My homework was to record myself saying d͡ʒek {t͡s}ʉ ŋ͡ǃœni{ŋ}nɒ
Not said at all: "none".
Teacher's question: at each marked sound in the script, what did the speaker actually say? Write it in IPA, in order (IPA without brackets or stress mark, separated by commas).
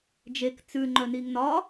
t͡s, ŋ